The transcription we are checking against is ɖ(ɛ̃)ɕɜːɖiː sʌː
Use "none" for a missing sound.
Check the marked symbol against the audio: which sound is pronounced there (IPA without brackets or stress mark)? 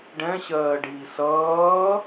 ɛ̃